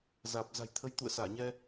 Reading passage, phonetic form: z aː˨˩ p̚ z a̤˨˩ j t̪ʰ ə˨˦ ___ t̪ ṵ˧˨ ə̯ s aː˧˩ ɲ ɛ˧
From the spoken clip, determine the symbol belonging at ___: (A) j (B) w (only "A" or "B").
A